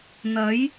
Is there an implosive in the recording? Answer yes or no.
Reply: no